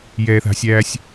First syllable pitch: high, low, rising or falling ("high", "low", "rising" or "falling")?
low